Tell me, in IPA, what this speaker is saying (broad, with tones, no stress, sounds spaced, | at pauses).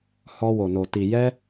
h ɔ˧ w o˨ n o˨ t i˨ j ɛ˧